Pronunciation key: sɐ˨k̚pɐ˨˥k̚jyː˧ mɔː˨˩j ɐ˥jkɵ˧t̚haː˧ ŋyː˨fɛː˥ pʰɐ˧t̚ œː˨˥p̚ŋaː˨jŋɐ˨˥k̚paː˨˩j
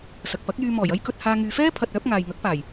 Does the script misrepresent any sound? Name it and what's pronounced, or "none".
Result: none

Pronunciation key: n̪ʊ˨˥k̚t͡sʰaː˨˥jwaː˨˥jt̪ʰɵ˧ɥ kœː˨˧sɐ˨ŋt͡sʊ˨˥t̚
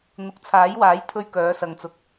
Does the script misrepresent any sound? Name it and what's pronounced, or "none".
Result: t̚ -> k̚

